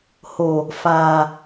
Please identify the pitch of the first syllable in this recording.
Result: low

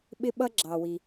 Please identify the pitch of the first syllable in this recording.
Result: high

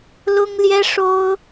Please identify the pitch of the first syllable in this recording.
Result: high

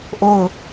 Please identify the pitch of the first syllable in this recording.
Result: falling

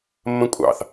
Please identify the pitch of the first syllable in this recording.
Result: high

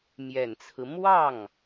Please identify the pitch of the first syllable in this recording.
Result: low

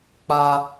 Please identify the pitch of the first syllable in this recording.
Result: high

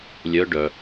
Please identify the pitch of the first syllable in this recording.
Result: rising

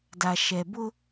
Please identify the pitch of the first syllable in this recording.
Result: low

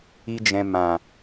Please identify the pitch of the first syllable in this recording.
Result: high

